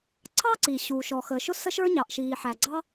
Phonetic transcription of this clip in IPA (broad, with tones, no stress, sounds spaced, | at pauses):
ǀʰ ɑ˥ ǀ i˩ ɕ uː˩ ʃ ɔ˩ x ə˩ ʃ ʊ˥ s ə˥ ʃ ə˞˥ ɲ ɑ˩ ʔ ʃ iː˩ ħ æ˩ ɡ͡ǀ ɑ˥